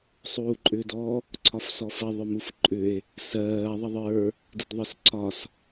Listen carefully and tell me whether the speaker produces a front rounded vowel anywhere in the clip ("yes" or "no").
yes